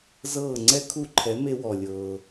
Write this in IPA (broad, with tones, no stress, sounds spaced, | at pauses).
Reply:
z ɤː˥˩ ŋ͡ǀ ɛ˥ kʰ u˥˩ ǃʰ ɛ˩˥ m e˧ w ɔ˩ lʲ ɤː˩